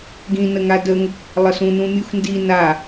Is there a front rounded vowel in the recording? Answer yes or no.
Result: no